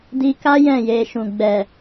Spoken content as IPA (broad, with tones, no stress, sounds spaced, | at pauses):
d i˧ k a˦ j ɛ̃˦˨ j e˧ ʃ ũ˨ ɡ͡b ɛ˨